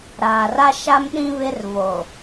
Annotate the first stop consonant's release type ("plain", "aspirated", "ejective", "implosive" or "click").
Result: implosive